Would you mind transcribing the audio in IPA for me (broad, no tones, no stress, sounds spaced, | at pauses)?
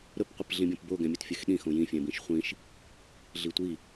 ɾ ɵ p qʷ i p ɮ ĩ bʲ õ p b o ɡ ɛ̃ mʲ ø t fʲ ø x ɗ ĩ x õ j ĩ fʲ ɛ̃ b ĩ ʃ χʷ ĩ ʃ | ɮ i tʷ i